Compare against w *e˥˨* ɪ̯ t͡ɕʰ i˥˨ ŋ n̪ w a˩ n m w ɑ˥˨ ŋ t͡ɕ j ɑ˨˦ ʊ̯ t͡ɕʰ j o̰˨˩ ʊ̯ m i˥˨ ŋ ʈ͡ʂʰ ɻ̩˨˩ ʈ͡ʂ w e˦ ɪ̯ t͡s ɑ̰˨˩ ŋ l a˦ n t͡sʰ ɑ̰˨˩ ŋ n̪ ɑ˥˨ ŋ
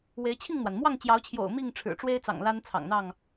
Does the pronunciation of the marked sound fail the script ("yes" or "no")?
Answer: yes